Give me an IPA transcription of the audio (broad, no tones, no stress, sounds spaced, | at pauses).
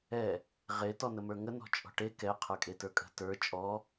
ɛ | ʁ e t ɔ n ə m ə˞ ŋ ə n ɔ̤ t͡ʃʼ ɔ̤ ʈ e k ɛ qʰ ə˞ kʼ e t ə˞ kʼ ə̤ t ə˞ t͡ʃʼ ɔ